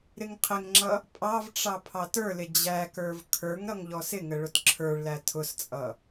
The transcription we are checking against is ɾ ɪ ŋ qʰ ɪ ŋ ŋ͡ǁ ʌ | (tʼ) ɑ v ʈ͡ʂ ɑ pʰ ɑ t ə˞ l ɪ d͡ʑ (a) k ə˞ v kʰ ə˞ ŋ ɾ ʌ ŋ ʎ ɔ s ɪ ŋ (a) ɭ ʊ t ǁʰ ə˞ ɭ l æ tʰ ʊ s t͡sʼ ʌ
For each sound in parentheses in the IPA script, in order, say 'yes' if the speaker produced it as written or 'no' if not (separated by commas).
no, no, no